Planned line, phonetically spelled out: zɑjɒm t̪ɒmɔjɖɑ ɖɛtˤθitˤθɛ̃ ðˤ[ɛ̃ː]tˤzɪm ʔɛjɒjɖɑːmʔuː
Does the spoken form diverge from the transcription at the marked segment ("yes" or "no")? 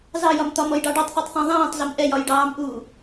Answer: no